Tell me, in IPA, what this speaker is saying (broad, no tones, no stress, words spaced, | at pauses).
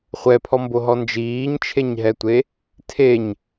χʷɛpʰɔmboɦɔ nd͡ʒiːɲt͡ʃʰeɲɦɛtʷe | tʰeɲ